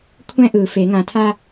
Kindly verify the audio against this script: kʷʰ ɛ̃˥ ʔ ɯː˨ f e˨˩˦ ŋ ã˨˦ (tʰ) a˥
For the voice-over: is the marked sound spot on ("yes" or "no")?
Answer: yes